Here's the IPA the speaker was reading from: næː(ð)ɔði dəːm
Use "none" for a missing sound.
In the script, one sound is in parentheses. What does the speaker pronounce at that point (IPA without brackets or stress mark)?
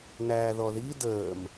ð